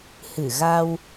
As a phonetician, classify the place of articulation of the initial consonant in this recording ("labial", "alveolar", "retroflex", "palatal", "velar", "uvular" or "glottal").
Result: glottal